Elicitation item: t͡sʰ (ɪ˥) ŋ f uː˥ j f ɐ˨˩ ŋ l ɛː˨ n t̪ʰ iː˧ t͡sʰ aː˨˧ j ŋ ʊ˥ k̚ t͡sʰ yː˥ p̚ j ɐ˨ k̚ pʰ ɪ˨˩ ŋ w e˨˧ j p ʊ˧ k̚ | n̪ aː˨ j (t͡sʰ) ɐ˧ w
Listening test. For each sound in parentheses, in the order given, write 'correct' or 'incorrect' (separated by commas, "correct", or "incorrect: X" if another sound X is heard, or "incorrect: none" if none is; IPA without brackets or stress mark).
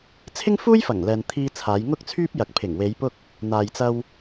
correct, incorrect: t͡s